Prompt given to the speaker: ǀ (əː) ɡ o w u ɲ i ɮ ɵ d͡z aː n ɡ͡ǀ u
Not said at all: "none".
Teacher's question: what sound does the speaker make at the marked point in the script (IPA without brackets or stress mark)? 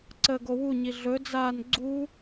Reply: əː